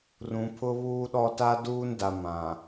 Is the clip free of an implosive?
no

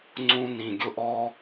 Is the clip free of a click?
no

